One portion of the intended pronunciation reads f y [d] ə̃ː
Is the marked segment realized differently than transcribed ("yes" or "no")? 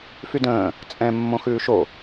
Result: no